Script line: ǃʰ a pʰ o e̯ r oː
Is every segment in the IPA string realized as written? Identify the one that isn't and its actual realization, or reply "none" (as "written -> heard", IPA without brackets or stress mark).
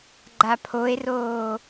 ǃʰ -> ɡ͡ǃ